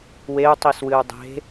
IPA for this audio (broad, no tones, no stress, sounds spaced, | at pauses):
w e u̯ tˤ i s w ɨ u̯ dˤ e̤